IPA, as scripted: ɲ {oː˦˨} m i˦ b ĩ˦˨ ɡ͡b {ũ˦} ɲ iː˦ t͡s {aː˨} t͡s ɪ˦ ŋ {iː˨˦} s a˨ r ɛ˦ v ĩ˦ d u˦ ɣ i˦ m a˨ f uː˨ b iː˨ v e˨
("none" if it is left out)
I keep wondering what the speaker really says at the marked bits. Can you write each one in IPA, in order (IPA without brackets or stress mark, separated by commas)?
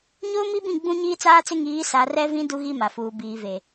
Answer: oː˦, ũ˦, aː˦, iː˨˦